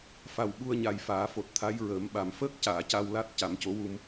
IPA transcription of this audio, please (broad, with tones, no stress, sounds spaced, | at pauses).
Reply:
f a˨˩ w ɓ u˧ ə̯ ɲ a˨˩ j f aː˨˩˦ f o˨˩ t̚ t̪ʰ a˧˥ j ɹ əː˨˩˦ m ɓ a˨˩ m f əː˦˥ k̚ c aː˨˩˨ c a˧ w l a˦˥ t̚ c a˨˩˦ m c o˧˥ w u˧ m